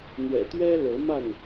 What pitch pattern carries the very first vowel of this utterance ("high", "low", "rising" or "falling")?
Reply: low